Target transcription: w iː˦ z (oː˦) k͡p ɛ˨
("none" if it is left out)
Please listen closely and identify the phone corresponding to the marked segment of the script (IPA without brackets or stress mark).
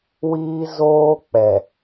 oː˦